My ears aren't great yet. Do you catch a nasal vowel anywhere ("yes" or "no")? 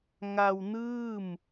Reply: no